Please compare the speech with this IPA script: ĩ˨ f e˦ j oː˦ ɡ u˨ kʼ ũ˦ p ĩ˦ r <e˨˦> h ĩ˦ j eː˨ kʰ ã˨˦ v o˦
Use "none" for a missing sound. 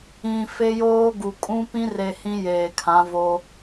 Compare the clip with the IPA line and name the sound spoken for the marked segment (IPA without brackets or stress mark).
e˨